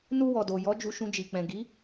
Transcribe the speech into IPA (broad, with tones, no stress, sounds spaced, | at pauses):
n u˧ w ɔ˨ d o˨ j ɔ˨˦ d͡ʒ u˧ ʃ ũ˧ d͡ʒ i˨ k͡p ɛ̃˨ ɡ i˨˦